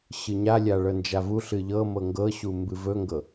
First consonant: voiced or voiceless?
voiceless